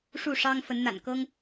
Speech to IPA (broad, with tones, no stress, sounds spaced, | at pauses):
ʂ u˥˩ ʂ ɑ˥ ŋ f ə˧˥ n n̪ a̰˨˩ n k ɤ˥ ŋ